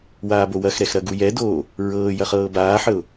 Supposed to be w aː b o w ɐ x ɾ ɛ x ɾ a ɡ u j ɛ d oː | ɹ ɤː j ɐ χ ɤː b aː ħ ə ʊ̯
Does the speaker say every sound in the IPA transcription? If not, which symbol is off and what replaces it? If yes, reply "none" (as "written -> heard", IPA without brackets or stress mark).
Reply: a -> ɐ